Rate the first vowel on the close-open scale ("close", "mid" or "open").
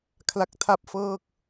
open